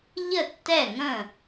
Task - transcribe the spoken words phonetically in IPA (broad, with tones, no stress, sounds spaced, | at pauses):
ʎ ə˥˨ tː ɛ˥˨ ŋ ə̃˥˨